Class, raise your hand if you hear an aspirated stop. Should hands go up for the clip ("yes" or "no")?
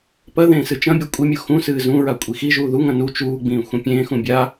no